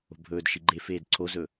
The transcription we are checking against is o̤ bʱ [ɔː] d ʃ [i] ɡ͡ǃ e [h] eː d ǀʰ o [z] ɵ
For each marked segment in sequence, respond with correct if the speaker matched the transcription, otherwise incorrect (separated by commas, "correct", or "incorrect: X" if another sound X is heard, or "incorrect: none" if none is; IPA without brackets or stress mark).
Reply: incorrect: ɵː, correct, incorrect: f, correct